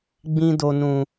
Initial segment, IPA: ɡ͡b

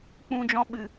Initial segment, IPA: k͡p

